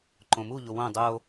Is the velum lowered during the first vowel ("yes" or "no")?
yes